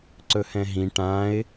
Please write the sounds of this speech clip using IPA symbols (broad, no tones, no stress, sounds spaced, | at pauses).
ǀ ɵ h ɛ̃ ɦ ĩ ʈ ã ɪ̯